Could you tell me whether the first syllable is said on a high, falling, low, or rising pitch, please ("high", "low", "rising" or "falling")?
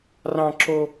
high